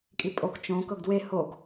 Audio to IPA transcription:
kʼ i pʼ o k t͡ʃ õ k ɤ ɡ d w e h o ɡ

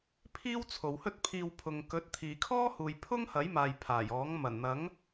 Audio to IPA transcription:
pʰ iː˥ w t͡sʰ o˨ w h ɵ˥ t̚ pʰ iː˧ w pʰ ʊ˨ ŋ k ɵ˨˥ t̚ t̪ʰ iː˨ kʰ ɔː˥ h uː˨ j pʰ ʊ˥ ŋ h ɐ˨˥ j m aː˨ j pʰ aː˨˩ j ɔː˨˥ ŋ m ɐ˨˩ n n̪ ɐ˨˥ ŋ

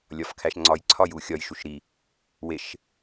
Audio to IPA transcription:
lʲ ɒ f kʰ æ ʃ ŋ͡ǀ ɒ j ǀʰ ɒ j u xʲ ɒ j ʃ u ʃ ɾ i | w e ʃ

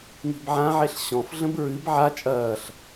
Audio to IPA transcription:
ŋ i̤ b ʕ ã ʕ e ɬ ɕ ɔ̃ f ɮ ə̃ b ɹ ɨ b ʕ a t͡ʃʼ ɐː ɬ

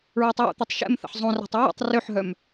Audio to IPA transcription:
ɹ æ tˤ w o̰ t̪ œ tˤ ʃ ɛ̰ m θ ə̰ ħ zˤ õ r æ̤ tˤ ɹ ə̰ tˤ r ø ħ ɦ œ m

